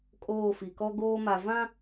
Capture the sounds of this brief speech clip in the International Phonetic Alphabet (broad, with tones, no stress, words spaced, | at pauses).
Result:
kʼoː˦˨fi˨kɔ˦ ɡoː˦ma˨ vã˦